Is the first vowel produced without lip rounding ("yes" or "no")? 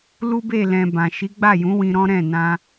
no